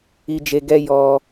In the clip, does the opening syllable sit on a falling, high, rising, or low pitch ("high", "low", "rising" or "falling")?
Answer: high